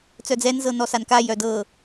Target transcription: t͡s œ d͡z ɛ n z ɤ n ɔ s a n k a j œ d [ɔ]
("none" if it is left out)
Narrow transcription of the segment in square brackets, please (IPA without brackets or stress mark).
ɤ